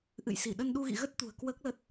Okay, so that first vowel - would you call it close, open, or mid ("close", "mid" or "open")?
close